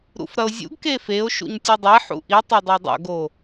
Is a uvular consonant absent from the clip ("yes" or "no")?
yes